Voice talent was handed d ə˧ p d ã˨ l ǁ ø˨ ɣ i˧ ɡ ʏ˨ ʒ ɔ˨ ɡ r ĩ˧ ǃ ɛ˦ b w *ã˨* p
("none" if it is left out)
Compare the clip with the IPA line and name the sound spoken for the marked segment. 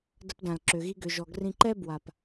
a˨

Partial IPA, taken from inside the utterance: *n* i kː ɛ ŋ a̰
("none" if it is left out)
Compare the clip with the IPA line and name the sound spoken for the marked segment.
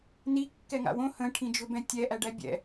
n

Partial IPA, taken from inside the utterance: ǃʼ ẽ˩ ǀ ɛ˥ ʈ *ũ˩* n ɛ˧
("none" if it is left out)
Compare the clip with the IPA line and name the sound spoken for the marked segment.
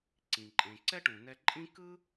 ũ˩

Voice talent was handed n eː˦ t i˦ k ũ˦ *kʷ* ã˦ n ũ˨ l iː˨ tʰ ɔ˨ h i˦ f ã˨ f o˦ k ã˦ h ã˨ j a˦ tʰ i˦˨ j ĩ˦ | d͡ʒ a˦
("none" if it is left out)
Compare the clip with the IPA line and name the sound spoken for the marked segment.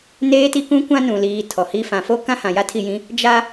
kʷ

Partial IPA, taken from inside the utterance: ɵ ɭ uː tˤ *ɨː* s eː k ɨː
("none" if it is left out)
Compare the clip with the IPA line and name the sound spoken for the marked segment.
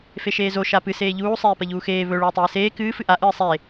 eː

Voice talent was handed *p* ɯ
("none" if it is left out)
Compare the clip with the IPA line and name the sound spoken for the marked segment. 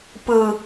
p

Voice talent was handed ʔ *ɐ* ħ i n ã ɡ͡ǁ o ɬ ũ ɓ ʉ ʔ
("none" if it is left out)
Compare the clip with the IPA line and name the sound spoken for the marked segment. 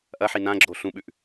ɐ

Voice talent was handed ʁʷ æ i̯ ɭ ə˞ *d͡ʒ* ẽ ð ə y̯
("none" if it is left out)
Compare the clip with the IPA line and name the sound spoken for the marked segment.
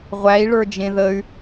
d͡ʒ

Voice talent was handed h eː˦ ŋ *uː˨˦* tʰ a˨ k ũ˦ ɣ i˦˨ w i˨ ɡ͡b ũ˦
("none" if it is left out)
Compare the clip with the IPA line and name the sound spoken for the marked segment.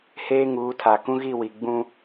uː˨˦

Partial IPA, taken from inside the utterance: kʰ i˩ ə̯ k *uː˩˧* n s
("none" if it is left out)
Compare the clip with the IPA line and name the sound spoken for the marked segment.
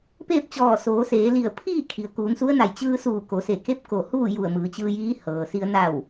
uː˩˧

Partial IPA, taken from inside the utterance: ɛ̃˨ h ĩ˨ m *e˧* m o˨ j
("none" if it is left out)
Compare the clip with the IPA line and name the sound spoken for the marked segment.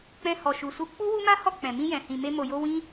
e˧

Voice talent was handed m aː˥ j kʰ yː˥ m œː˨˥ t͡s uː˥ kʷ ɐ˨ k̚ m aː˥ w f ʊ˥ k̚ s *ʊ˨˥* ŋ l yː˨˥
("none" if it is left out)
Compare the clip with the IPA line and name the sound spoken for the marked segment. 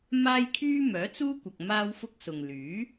ʊ˨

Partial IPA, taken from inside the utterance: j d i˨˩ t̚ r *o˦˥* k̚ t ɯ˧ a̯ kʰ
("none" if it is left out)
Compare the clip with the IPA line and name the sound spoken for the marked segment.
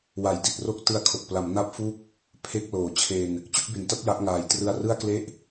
o˥˩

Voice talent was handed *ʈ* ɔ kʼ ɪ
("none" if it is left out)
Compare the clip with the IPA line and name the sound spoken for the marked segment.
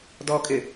d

